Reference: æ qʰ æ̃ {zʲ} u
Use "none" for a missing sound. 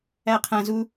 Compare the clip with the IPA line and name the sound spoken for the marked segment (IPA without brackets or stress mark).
z